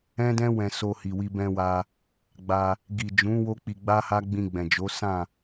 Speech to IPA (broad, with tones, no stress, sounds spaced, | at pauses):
ɛ̃˦ d ɛ̃˦ w ɛ̃˧ s o˧ h i˨ w i˧ b ɛ̃˧ w a˧ | ɡ͡b a˧ | ɡ i˨ d͡ʒ ũ˨˦ w o˦ k͡p i˧ ɡ͡b a˦ h a˦ ɡ͡b ĩ˧ ɡ͡b ɛ̃˨ d͡ʒ o˨˦ s ã˦˨